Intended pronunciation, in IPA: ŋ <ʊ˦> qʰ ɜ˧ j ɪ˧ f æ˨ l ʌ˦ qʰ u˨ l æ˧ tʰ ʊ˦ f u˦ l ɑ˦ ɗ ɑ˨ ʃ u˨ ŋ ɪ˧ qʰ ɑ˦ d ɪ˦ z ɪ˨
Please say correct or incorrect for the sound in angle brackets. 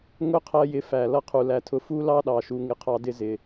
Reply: correct